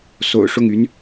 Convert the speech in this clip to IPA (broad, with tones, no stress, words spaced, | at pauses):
so̰˨˩ʊ̯ʂʊ˥˩ŋy˧˥n